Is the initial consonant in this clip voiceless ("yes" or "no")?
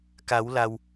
yes